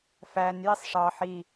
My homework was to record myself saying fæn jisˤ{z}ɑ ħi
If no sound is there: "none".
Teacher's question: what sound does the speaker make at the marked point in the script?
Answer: ʂ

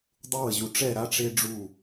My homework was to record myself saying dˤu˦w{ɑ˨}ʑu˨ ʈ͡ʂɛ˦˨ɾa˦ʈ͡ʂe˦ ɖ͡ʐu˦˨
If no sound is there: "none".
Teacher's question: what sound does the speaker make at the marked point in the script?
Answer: ə˨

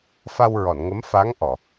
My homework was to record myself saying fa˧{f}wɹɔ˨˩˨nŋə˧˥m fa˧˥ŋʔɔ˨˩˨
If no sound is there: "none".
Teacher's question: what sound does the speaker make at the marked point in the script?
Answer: none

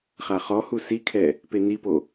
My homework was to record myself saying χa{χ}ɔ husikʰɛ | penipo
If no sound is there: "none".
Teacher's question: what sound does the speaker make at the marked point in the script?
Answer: χ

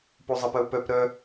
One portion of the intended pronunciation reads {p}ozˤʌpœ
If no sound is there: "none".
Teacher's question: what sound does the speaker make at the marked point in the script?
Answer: p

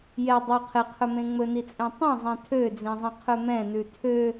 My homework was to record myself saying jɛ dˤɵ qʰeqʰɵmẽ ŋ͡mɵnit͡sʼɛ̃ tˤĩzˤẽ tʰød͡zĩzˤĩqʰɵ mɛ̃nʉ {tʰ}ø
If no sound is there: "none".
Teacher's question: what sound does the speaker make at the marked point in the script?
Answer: tʰ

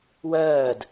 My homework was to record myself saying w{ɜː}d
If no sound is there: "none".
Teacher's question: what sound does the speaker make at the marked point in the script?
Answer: ɜː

